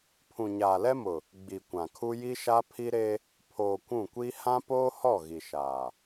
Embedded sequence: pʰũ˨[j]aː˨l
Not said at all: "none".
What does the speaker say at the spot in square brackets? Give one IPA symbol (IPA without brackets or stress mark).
ɲ